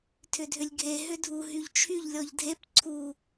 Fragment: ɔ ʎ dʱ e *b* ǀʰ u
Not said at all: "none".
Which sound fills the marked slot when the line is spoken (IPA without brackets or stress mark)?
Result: p